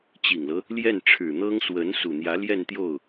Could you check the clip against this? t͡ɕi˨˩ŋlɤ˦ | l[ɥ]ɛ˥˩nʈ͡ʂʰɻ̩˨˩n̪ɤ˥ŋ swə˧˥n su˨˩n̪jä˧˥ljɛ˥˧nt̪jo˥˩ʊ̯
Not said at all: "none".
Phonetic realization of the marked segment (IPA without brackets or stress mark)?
j